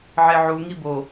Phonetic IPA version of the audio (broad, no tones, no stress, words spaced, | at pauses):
ʕeʕu ŋibo